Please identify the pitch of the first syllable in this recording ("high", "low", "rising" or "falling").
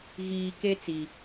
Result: low